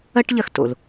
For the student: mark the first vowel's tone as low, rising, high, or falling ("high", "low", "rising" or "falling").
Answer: high